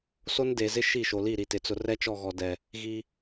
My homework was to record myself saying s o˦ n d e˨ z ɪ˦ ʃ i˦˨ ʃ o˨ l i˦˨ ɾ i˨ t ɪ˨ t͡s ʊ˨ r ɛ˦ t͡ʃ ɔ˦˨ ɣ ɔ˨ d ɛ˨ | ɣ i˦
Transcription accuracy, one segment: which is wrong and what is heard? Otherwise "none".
none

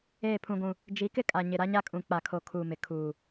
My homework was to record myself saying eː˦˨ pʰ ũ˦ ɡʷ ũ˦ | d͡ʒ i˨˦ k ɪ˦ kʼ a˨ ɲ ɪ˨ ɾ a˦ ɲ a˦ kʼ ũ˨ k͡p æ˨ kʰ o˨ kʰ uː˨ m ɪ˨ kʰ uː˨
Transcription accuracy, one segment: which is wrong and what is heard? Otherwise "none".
æ˨ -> a˨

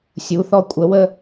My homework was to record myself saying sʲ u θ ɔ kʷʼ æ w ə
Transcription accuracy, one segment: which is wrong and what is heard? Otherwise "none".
æ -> ə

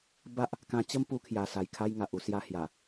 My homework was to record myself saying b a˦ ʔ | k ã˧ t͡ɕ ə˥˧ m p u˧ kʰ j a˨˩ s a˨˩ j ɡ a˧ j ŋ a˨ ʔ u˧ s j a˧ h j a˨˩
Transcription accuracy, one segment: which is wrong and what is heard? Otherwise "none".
ɡ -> kʰ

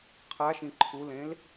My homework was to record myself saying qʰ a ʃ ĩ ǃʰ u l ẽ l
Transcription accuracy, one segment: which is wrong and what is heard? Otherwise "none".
none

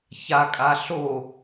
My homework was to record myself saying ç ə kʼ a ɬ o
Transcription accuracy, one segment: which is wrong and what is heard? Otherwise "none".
ə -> a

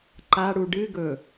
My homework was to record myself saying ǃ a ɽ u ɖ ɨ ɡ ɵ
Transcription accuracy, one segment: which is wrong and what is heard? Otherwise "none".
none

